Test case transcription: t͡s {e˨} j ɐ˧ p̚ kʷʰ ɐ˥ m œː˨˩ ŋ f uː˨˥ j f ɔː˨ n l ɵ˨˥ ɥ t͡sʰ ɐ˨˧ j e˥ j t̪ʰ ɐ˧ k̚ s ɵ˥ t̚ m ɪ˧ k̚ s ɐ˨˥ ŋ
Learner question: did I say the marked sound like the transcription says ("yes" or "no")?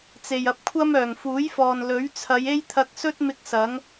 yes